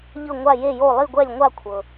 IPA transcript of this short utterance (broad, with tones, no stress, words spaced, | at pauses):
ʎɤ˥˨ŋʷa˥˨ je˥˨jo˥˨ lˠi˥˨ɡʷɛ˥˨lʲŋʷa˥˨ kʷʰɤ˩